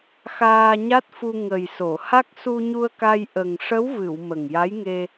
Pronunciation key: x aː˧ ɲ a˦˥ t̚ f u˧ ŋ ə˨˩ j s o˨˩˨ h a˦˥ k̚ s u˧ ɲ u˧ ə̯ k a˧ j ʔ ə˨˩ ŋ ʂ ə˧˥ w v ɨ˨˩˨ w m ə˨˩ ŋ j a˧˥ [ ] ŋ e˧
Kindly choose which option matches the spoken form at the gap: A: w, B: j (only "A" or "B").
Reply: B